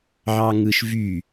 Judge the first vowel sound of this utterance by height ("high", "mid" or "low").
low